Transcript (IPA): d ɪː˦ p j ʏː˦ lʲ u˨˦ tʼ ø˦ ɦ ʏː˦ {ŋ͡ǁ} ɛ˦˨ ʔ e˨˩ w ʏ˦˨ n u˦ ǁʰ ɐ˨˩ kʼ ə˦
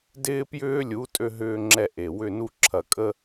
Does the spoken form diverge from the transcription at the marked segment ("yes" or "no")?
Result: no